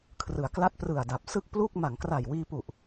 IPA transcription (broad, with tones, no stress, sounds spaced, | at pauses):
kʰ r ɯ˩˦ a̯ k l a˦˥ t̚ p r ɯ˨˩ a̯ d a˨˩ p̚ s ɯ˥˩ k̚ p l u˥˩ k̚ m a˩˦ ŋ k r a˨˩ j w iː˧ p u˨˩ ʔ